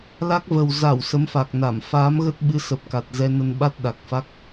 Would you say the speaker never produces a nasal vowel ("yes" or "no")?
yes